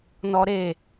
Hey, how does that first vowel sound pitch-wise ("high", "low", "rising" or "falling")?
high